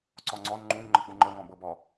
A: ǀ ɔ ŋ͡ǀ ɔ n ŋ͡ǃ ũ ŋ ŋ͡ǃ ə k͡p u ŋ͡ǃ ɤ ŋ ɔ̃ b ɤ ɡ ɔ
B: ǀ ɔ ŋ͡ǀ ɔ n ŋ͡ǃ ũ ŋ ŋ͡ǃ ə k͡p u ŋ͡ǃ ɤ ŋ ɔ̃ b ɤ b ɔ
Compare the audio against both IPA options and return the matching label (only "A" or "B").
B